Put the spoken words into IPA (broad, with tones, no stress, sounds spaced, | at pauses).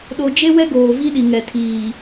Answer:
ɗ o˨ d͡ʒ e˦ w ɛ˦ ɡ oː˨ v i˦ ɗ i˨ ŋ ɛ˨ tʰ iː˨